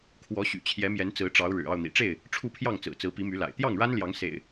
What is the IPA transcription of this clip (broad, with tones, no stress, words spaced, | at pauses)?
kʰwɔ˨˦ɕy̰˨˩ t͡ɕʰjɛ˨˦mjɛ˨˦nt͡sɹ̩˨˦ ʈ͡ʂɑ˨˦ʊ̯ ɻɻ̩˨˩ ɑ˥˨ʊ̯n̪ḭ˨˩ʈ͡ʂe˥˨ɪ̯ | ʈ͡ʂʰu˥˨pʰjɑ˥˨ŋt͡sɹ̩˨˩ t͡sɹ̩˨˦pi˨˦my˨˦la̰˨˩ɪ̯ t̪jɑ˥˨ŋɻa˦nljɑ˨˦ŋ sḛ˨˩ɪ̯